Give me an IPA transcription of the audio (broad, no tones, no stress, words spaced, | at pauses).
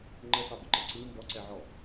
ŋ͡ǃəsɑbəǃə ǀɯ mbɔǀɛʕɔ